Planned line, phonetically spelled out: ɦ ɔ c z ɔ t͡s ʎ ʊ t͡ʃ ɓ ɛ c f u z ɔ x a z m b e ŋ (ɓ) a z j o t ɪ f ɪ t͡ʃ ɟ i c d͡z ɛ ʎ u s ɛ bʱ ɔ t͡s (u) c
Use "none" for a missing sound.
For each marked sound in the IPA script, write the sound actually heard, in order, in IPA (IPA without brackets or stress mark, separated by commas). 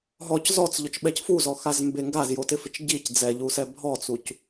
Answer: ɡ, u